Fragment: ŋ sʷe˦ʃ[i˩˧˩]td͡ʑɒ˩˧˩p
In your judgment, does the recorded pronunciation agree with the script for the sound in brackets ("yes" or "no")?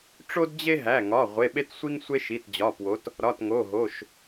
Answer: yes